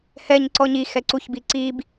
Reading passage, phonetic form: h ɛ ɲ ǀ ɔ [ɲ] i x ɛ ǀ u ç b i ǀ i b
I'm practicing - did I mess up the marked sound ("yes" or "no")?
no